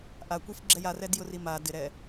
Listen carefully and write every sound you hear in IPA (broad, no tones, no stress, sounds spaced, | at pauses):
ʔ a kʷ i f ɡ͡ǁ ɛ j a r ɛ d j ʊ r i m a d ɪ ɾ ɛ